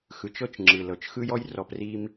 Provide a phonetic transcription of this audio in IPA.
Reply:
x ɯ˨ t͡ʃ ɤ˦ t͡ʃ ŋ͡ǁ ɯ˨ l ɤ˨ t͡ʃ x ɯ˦ j ɔ˦ j r ɔ˦ p r i˦ m

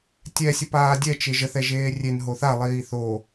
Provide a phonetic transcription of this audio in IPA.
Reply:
tʲ ɛ sʲ ə p aː dʲ ɛ t͡ʃ e ʒ ə θ ɛ ʒ eː rʲ e n ɦ o θ a lˠ iː θ o

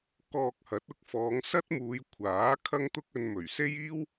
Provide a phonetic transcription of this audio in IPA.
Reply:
k ɔː˧ k̚ h ɐ˨˥ t̚ ʊ˧ k̚ f ɔː˨˧ ŋ s ɐ˥ t̚ m uː˨˧ j kʷʰ aː˨˥ kʰ ɐ˥ ŋ t̪ ʊ˥ k̚ ɵ˧ n m ɵ˨˩ ɥ s e˥ j iː˥ w

